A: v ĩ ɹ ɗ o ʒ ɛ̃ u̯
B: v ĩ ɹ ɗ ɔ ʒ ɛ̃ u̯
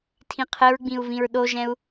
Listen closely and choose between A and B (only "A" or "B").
A